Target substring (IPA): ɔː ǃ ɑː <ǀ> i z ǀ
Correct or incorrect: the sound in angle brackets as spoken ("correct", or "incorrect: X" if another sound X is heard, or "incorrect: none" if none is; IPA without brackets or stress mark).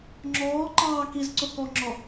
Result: incorrect: k